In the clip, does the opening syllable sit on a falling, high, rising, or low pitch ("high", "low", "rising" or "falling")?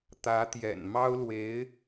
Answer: rising